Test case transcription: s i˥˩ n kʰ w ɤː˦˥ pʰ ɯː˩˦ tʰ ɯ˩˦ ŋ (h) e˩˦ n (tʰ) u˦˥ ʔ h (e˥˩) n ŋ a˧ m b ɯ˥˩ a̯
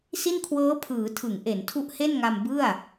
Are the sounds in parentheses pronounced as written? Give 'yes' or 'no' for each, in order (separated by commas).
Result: no, yes, yes